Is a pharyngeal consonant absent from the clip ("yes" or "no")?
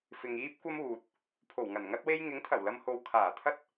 yes